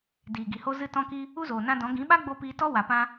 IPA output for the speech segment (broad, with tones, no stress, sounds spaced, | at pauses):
d iː˨ ɡ i˨ h o˧ z ɨ˧ t ɔ̃˧ k i˧ | u˦ z oː˨ n ã˧ d ɔ̃˨˦ ɡ ĩ˨˦ ɓ a˦ ɡ͡b o˧ p iː˧ t ɔ˦ w a˨ p ã˧